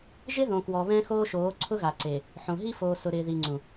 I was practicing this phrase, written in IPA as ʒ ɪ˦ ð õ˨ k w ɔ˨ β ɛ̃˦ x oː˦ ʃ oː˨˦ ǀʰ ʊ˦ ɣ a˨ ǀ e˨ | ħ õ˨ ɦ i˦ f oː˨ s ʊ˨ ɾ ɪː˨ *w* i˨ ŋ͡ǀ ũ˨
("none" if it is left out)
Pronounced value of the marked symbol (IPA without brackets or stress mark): ð